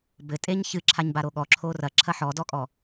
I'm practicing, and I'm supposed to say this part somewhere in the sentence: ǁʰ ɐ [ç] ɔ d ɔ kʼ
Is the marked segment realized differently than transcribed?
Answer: yes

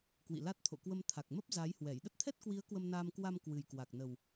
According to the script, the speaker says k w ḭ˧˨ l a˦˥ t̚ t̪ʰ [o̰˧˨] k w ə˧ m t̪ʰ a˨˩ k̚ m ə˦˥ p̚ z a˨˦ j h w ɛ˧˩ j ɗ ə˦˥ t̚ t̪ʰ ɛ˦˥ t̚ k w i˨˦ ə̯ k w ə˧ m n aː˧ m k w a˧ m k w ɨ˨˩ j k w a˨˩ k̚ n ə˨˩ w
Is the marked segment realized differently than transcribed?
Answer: no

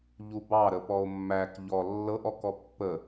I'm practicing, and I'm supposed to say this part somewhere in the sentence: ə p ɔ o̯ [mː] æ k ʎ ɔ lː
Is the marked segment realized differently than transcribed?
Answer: no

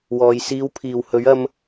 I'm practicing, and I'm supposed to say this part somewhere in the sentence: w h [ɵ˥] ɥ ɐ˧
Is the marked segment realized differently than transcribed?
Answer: yes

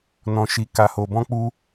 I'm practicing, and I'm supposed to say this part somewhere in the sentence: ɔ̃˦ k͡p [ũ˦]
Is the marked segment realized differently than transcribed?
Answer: yes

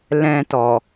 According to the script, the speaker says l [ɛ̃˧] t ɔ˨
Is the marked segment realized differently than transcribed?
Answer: no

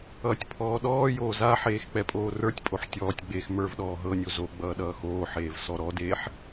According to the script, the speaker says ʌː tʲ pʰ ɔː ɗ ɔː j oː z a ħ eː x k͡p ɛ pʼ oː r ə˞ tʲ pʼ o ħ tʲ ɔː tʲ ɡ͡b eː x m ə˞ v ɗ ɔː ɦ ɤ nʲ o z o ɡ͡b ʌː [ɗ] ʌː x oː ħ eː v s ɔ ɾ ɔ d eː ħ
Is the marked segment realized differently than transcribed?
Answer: no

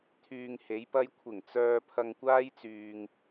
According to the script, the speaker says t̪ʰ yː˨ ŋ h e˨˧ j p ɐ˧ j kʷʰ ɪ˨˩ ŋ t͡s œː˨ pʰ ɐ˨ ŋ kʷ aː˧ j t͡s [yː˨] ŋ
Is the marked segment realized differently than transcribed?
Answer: no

